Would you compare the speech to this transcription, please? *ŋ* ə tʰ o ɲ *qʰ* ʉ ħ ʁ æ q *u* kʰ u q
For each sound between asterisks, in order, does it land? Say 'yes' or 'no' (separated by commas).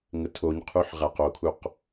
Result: yes, yes, no